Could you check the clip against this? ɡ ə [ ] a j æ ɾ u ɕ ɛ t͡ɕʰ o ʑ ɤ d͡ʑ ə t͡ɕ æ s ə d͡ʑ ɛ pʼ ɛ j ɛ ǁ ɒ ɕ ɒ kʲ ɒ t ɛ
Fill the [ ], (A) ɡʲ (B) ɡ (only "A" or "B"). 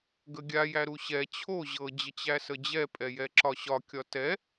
A